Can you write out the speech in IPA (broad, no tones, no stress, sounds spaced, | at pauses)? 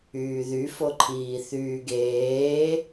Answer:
yː ð y f o ǃʰ iː θ yː ɡ eː